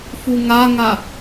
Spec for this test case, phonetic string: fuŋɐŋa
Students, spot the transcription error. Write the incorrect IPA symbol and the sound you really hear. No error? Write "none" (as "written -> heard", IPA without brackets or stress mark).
ɐ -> a